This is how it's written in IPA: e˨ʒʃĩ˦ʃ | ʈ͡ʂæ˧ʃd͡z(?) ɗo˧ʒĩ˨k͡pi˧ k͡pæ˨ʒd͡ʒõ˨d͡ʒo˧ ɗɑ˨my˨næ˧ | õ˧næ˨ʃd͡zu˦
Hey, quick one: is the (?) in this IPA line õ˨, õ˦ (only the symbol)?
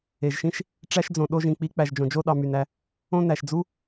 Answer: õ˨